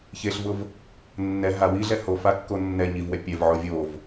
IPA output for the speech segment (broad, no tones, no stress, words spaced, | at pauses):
çeɬvʊv | nːɛ ɦa wiɮɛ hofakːo nːɛ ɲivwɛ pʲɛvʕo vʲov